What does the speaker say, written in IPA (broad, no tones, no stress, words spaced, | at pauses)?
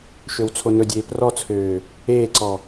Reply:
ʃøwt͡sʰonɵdʲeː prɔt͡sʰøː | eːǀɔ